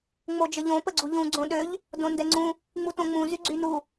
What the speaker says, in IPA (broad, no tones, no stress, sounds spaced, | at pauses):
ŋ͡m o d͡ʒ ə ʎ õ p ə ɡ͡ǀ u ʎ ũ ɡ͡ǀ õ ɗ ø ʎ | d õ n d ɛ ŋ͡ǀ ũ | ŋ͡m u t õ ŋ͡m ũ z y ɡ͡ǀ y n u